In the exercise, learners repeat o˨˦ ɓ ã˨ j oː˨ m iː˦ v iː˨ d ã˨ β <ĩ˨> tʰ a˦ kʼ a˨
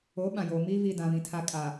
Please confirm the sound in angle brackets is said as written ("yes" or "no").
yes